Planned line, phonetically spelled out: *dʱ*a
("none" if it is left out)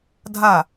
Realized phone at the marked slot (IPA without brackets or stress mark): dʱ